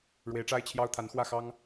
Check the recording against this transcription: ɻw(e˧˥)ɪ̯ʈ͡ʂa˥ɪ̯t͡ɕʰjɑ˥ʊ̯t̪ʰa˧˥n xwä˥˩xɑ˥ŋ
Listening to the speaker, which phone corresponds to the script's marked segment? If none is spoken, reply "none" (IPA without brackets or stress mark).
e˧˥